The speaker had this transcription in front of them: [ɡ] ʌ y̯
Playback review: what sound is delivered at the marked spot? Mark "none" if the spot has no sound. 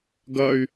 ɡ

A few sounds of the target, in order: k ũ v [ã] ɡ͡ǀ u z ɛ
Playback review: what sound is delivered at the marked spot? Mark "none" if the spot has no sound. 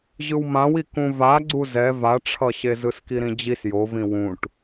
a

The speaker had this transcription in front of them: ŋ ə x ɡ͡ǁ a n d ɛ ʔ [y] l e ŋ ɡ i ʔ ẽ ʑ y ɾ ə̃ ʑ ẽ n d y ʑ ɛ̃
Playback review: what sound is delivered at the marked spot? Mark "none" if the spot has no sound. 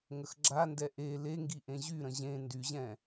e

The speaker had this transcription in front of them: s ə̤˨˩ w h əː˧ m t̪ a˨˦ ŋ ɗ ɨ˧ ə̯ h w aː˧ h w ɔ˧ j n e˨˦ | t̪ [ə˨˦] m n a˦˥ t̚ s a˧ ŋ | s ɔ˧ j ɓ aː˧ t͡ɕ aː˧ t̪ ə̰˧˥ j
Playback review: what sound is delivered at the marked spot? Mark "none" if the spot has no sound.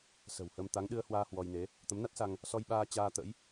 ə˨˦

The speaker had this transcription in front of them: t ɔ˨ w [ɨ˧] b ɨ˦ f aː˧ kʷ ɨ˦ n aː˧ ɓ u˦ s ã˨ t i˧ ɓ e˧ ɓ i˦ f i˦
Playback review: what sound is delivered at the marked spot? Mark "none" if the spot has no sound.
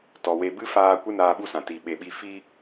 e˧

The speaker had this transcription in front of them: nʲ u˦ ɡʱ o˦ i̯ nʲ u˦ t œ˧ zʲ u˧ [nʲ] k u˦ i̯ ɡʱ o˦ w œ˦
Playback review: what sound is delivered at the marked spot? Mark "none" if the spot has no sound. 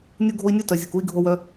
none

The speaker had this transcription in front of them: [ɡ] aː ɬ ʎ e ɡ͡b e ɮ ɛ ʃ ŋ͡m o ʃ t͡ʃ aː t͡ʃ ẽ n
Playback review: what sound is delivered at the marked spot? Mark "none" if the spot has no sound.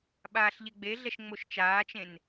ɓ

